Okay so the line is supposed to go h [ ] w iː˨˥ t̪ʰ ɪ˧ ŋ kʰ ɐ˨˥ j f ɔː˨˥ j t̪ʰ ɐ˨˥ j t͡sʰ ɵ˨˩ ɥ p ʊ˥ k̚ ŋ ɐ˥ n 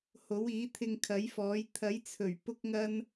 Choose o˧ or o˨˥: o˨˥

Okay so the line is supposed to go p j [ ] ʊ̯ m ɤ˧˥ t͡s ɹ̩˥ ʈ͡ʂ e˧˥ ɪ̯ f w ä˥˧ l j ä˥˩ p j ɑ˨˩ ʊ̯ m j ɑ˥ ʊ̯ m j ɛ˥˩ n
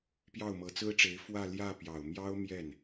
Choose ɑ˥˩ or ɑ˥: ɑ˥˩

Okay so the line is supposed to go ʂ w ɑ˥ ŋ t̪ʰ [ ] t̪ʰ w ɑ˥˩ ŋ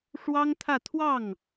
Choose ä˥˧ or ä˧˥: ä˥˧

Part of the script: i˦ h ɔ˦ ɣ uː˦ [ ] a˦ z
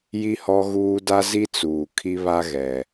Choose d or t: d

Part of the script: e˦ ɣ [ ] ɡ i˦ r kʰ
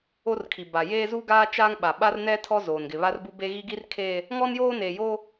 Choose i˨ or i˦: i˦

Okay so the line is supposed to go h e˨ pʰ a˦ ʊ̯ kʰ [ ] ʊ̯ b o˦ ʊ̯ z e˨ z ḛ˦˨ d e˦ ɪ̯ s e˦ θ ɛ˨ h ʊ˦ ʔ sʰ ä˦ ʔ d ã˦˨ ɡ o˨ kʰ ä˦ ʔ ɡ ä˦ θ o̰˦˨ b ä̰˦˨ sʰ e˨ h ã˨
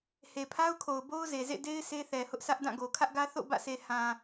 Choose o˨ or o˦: o˨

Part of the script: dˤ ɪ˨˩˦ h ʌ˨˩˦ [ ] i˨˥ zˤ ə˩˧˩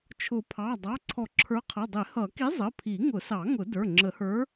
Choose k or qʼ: k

